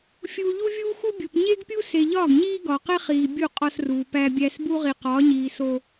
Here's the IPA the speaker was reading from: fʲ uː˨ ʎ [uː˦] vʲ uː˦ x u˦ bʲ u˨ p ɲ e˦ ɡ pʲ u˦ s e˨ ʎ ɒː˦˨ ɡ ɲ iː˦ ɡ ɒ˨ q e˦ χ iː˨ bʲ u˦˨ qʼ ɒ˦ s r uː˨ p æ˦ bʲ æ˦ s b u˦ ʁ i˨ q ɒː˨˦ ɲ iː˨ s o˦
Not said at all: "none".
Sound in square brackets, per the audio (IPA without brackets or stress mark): u˦